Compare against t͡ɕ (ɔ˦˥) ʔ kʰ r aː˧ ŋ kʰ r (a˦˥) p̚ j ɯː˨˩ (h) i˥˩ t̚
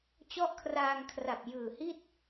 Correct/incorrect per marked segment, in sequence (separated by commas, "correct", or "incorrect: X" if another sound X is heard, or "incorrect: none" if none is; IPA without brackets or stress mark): correct, incorrect: a˨˩, correct